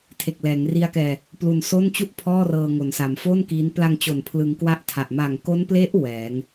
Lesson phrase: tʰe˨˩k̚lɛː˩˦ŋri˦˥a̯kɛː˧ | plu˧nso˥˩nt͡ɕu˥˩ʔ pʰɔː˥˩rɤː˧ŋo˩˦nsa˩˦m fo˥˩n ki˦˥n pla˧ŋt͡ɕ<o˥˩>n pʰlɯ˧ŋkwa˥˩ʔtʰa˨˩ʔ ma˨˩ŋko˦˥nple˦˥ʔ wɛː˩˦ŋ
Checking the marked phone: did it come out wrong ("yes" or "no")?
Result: yes